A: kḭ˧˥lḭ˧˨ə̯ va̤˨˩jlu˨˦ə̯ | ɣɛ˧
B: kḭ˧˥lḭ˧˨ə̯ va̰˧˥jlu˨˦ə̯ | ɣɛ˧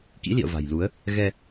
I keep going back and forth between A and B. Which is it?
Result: A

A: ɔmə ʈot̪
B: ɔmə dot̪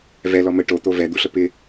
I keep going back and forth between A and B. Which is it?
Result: A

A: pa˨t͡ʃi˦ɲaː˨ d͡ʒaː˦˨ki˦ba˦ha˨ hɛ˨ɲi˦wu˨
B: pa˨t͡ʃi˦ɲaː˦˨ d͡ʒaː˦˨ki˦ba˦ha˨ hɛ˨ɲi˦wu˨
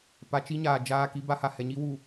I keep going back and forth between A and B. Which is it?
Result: A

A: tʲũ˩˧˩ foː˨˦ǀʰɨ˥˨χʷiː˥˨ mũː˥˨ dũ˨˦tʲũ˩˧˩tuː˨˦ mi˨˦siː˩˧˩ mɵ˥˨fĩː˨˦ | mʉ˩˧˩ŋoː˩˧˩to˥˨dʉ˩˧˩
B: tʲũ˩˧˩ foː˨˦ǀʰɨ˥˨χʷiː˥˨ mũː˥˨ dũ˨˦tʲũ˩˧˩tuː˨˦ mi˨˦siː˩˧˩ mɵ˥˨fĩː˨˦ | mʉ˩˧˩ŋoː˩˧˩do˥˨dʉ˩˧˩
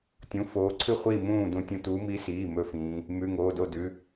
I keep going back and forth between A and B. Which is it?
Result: B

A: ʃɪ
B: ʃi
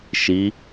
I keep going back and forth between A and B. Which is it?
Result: B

